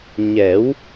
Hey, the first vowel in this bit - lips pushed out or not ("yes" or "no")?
no